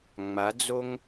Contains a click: no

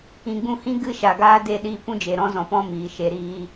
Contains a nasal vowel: yes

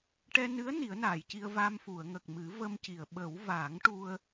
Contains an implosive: yes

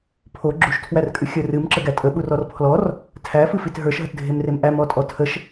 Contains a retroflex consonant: no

